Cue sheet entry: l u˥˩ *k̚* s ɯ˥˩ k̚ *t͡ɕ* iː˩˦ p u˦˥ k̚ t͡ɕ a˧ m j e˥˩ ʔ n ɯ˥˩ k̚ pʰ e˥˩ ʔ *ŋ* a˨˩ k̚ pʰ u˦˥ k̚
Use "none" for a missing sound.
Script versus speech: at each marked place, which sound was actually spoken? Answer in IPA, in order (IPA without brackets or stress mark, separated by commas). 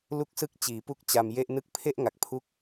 k̚, t͡ɕ, ŋ